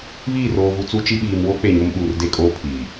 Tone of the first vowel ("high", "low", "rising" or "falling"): falling